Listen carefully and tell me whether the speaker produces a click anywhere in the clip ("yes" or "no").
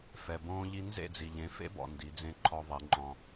yes